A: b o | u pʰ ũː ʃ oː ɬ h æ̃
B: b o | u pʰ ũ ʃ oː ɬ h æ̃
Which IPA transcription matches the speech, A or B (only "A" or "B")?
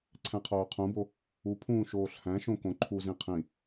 A